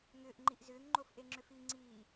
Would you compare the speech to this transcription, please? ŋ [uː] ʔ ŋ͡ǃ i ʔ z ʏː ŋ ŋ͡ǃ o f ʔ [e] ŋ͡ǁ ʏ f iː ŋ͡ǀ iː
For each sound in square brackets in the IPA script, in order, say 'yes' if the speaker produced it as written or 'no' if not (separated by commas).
no, yes